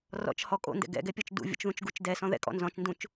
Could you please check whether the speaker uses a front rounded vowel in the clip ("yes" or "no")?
no